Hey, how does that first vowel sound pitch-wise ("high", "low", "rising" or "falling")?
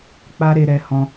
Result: high